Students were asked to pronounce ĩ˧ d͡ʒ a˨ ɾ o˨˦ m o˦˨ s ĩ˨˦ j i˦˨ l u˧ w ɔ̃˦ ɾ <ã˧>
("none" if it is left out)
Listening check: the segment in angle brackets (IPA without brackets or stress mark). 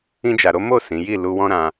ã˧